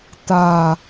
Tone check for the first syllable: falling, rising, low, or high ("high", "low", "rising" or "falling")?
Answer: low